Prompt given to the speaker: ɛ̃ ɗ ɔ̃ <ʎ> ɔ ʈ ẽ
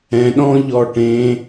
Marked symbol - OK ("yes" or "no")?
yes